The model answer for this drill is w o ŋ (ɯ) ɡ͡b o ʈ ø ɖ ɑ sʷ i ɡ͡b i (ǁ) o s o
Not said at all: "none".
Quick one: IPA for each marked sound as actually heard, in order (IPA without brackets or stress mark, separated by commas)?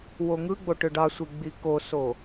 ɯ, k